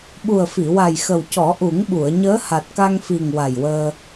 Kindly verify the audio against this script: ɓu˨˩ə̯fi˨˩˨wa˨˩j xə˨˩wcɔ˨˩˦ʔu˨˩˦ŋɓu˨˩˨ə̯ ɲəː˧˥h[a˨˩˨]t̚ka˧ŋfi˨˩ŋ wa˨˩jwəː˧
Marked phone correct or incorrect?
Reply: incorrect